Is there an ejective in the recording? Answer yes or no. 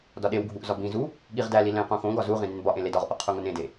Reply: no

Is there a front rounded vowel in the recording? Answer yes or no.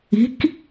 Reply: no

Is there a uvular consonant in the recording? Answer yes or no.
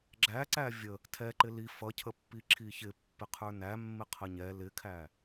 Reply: yes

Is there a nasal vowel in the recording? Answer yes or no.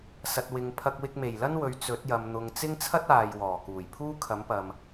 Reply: no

